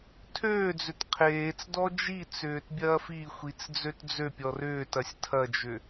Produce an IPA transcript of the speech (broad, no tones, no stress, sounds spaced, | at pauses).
tʰ øː d͡z ʏ t qʰ eː t͡s d ɔ d͡ʒ i t͡s ʏː t bʲ ɐː f i xʷ i t͡s d͡z ø t d͡z ø pʲ ɔ r ʏː t ɐ sʲ tʰ ɐ d͡ʒ ʏ